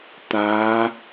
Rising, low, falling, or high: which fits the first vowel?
rising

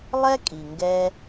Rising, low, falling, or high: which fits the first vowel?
high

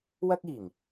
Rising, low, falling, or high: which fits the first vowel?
high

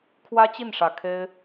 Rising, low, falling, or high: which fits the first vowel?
high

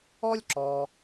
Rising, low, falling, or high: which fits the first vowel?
high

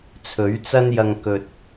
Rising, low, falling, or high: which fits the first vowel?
rising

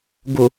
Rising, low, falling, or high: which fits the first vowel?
low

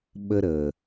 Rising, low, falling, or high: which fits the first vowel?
high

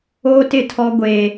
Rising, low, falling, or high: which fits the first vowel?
high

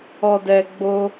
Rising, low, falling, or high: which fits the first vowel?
low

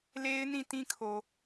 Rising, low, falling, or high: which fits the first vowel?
high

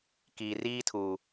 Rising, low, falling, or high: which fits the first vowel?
low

